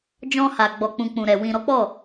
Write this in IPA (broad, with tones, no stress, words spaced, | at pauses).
d͡ʒɔ̃˧ha˨ ɡ͡bɔ˨k͡pũ˨ k͡pũ˨ɾɛ˨ wĩ˨ɾɔ˨˦k͡pɔ˦˨